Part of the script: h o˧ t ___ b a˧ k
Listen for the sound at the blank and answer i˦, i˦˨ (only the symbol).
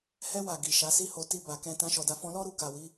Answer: i˦